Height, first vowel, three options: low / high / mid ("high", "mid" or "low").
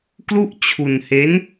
high